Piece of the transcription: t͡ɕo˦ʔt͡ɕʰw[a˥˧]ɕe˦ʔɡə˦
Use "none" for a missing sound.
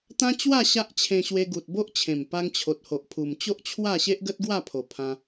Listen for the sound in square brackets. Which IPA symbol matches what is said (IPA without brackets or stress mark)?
a˥˧